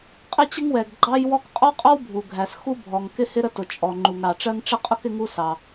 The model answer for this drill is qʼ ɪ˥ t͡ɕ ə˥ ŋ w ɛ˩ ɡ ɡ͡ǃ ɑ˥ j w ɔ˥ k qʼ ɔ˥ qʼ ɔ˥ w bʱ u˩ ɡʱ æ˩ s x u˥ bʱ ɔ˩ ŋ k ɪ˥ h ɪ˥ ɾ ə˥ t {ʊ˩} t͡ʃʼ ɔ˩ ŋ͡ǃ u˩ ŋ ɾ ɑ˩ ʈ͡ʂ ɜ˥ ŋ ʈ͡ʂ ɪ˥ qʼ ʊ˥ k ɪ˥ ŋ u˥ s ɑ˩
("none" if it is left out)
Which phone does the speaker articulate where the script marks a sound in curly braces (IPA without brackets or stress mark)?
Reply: ʊ˩